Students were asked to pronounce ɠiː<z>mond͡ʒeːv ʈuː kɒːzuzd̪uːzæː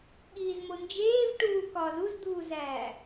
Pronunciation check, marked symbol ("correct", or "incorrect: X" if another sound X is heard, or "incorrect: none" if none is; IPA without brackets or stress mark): correct